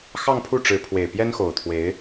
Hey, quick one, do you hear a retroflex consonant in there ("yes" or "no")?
yes